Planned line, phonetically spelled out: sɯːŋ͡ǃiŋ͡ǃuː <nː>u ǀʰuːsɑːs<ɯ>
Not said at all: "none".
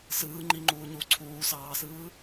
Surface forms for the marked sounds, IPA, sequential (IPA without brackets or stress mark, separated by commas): ɲ, ɯː